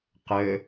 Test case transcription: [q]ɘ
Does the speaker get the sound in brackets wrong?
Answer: no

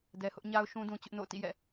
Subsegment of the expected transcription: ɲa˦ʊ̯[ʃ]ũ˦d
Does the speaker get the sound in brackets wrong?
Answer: no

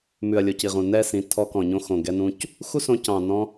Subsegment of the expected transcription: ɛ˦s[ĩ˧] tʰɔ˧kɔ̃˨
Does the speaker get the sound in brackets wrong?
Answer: no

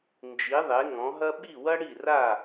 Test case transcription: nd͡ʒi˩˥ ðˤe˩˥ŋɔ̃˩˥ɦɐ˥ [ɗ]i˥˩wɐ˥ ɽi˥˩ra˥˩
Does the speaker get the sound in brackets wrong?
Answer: yes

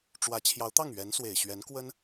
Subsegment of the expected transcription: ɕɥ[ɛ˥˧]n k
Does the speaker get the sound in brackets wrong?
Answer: yes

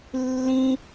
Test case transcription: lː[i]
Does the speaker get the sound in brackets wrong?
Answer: yes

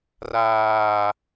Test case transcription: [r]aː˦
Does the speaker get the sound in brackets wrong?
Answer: no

